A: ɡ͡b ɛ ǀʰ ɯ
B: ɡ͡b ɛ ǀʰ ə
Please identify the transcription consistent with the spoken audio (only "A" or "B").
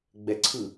A